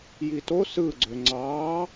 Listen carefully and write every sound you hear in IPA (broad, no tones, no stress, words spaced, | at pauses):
jito sɯɡ͡ǀø ŋ͡ǀɑː